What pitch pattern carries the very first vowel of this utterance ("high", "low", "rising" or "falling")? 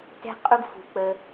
high